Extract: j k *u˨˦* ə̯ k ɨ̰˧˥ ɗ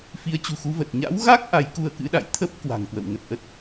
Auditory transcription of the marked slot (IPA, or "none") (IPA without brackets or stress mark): u˧